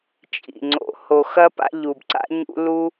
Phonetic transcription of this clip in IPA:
t͡ʃʼ ḭ˩ ŋ͡ǀ o̰˨ h o˨ x ɐ˥ p a̰˦ ʎ u˩ b ǀ a̰˥ ɲ ṵ˦ l u˥

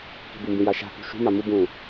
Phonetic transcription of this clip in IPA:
k i̤ b u m b ĩ j a ʃ a̤ k ṳ ʃ ṳ m a m u b ũː

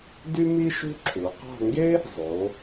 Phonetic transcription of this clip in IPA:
d y˥ m i˥ ʃ ṳ˥ ǁʰ u˩˧ q ɑ̤˥˧ ŋ ɡ e˥ | zˤ o˩˧

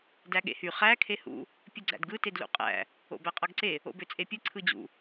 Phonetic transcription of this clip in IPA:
d æ ɠ ḛ h y χ æ kʰ e h ṵ | pʲ u ɡ͡ǀ æ̰ d ɡ ɯ t e d l ṵ qʼ æ̰ | o̰ b æ qʼ ɑ ɡ ǀ e | o̰ b ø t͡sʼ e pʲ ɯ ǀʰ ɯ d͡ʑ ṵ

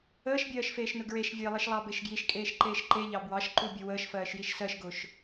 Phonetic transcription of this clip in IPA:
əː ʃ bʲ ɜː ʃ f eː ʃ n ʊ ɡ ɹ e ʃ vʲ e lˠ i ʃ lˠ ɑ b e ʃ ɡ j i ʃ kʼ eː ʃ ǃ eː ʃ ǃ e ʎ ɑ b w ɑ ʃ ǃ u bʲ ʊ w əː ʃ f ɜː ʃ j i ʃ s ɜ ʃ ɡ ʊː ʃ

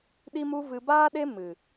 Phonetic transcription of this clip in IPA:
ɗ i˦ m u˦ v ɨ˧ b aː˦ ɗ e˦ m ɨ˨

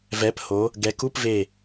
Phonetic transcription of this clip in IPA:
v ɛ˩˧ p h o˩˧ | ɡ ɛ˩˧ k u˧˥˧ p v e˧˩

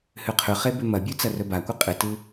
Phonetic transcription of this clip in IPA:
h ʉ qʰ ʉ χ e b ʉ m ɐ bʲ ʉ t͡s ɐ r ɵ b a kʷ ɨ qʼ ɨ t ɨ

